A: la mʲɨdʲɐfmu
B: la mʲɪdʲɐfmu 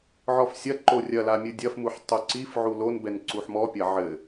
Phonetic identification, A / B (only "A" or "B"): A